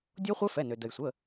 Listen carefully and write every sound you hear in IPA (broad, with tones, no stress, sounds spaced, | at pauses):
dʲ o˦˥ χʷ ɛ˦˥ f ɛ˩˧˩ n ø˩ d ə˩ j sʷ ə˩˧˩